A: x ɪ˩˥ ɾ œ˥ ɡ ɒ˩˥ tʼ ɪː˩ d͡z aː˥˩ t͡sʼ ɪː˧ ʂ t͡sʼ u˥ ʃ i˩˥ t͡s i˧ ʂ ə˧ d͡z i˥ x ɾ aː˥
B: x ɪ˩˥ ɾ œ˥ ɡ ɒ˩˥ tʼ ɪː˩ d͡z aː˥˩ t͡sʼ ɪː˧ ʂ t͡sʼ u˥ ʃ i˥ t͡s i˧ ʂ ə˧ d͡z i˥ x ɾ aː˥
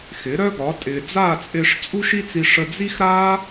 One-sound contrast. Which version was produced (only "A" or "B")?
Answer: B